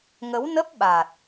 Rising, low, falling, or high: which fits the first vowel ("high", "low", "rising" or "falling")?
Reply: rising